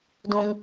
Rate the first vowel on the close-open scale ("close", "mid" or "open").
close